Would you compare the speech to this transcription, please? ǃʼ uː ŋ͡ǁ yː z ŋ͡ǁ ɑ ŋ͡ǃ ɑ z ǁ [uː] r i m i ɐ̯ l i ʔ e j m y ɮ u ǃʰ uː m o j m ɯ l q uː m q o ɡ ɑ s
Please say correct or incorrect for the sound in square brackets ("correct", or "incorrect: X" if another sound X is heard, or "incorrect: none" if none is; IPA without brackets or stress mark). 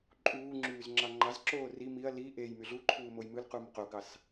incorrect: oː